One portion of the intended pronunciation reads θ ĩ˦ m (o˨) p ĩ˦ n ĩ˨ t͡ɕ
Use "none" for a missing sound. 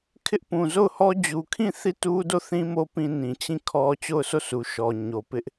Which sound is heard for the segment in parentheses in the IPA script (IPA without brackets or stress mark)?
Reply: o˦